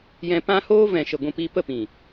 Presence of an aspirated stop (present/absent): absent